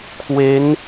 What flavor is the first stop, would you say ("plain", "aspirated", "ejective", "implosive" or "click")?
aspirated